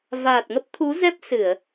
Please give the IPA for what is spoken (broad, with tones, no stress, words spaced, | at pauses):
vaː˨˩t̚ŋə˦˥p̚t̪ʰu˨˦zɛ˦˥p̚ sɨ˧˩˨ə̯